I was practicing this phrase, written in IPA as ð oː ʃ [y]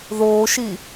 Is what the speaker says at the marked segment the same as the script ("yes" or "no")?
no